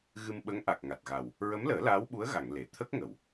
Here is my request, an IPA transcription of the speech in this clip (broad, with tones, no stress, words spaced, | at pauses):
ɣɨ˧mɓə˧˥ŋ ʔa˨˩k̚ ŋa˨˩t̚ɣa˨˩w | ɹə˧˥mləː˨˩˦ laː˧˥wɓu˧˥ə̯ɣa˨˩˨ŋ le˨˩˨ t̪ʰə˦˥k̚ŋə˨˩˨w